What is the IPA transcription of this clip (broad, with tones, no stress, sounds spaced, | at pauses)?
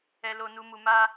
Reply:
ɛ˨ l o˨ n u˨ m u˨ m a˧